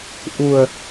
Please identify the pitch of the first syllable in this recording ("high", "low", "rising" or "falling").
low